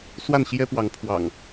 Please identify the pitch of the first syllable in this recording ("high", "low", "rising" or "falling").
falling